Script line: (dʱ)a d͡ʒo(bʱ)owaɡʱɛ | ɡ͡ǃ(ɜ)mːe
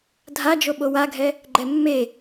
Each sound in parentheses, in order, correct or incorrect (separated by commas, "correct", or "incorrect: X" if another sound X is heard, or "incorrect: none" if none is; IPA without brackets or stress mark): correct, incorrect: ɓ, incorrect: ɛ